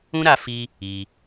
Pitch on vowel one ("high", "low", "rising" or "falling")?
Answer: high